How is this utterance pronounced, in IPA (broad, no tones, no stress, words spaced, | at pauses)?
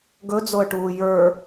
ɡɵd͡zoə̯ʈuː jə˞